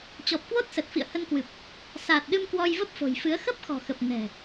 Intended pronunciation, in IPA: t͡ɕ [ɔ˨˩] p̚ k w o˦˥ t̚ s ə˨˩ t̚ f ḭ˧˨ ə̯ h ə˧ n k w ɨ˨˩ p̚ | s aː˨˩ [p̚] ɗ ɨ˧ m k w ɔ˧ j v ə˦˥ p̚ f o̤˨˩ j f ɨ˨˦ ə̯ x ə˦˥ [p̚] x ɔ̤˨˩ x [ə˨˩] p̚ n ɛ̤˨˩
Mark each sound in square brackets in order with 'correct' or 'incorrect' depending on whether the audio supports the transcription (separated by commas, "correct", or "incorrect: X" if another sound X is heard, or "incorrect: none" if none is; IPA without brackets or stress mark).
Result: correct, incorrect: t̚, correct, correct